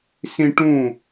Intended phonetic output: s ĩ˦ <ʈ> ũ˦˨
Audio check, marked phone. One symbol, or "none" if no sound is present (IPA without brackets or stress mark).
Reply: ʈ